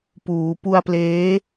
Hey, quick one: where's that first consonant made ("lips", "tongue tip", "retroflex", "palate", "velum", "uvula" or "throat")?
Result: lips